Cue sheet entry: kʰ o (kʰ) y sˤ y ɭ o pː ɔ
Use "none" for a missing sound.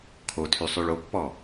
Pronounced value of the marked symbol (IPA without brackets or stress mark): tʰ